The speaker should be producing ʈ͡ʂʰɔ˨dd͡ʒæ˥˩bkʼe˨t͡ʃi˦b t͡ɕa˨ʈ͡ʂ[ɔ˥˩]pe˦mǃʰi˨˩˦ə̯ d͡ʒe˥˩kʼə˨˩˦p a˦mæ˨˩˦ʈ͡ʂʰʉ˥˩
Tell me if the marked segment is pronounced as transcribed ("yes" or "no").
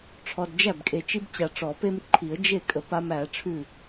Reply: no